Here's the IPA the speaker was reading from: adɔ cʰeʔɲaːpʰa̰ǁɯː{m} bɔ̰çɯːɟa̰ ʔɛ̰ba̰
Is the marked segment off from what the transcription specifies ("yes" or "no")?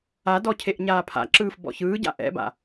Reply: yes